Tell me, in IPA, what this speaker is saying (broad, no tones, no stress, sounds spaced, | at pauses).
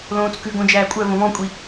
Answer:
l õː t͡s k ʉ ɡ õ d͡ʒ æː kʷʼ œ v õ v ɔ̃ kʷʼ i